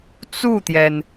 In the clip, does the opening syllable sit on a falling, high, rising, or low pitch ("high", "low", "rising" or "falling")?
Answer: falling